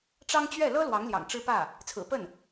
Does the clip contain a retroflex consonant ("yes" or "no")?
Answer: yes